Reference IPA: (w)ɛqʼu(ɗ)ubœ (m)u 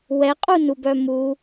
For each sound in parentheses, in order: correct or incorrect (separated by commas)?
correct, incorrect, correct